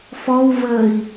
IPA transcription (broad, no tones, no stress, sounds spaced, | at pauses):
f ɔ w v əː i̯